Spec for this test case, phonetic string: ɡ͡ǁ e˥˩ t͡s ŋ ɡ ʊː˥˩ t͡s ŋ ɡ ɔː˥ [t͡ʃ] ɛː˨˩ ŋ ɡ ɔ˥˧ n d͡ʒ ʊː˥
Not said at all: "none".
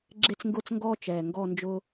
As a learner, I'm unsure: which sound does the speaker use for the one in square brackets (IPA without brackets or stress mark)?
t͡ʃ